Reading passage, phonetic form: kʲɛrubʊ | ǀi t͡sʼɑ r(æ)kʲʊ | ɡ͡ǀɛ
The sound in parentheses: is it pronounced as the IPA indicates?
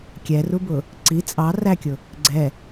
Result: yes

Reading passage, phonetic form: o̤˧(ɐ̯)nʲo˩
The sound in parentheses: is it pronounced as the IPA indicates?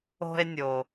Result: no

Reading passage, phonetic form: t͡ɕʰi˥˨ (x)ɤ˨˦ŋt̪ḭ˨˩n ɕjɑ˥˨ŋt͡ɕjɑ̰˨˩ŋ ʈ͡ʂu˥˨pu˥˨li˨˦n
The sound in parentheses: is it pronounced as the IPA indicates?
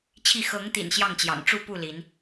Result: yes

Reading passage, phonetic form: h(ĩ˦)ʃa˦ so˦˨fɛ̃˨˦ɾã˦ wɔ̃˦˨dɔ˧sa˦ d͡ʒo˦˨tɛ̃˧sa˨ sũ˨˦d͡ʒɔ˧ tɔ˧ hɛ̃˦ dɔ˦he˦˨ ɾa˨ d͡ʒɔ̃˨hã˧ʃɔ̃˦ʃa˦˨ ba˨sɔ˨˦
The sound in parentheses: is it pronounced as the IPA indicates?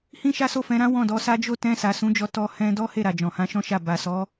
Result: yes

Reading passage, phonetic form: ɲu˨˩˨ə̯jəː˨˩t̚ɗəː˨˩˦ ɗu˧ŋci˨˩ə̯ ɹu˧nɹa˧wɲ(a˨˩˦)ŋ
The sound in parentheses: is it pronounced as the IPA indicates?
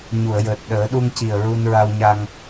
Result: no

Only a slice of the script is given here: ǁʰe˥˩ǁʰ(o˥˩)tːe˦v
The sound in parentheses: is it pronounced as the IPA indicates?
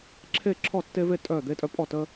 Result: no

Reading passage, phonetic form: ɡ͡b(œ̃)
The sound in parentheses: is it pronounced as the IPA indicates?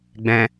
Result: no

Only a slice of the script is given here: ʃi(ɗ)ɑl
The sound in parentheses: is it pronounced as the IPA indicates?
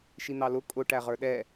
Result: no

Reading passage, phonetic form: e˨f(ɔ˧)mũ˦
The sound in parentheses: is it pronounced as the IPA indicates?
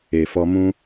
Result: yes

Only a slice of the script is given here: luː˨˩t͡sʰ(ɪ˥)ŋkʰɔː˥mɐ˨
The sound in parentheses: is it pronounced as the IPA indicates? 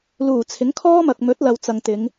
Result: no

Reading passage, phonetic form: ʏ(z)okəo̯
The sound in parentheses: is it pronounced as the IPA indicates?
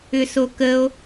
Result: no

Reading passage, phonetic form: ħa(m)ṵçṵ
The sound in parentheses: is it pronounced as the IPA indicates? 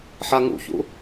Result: no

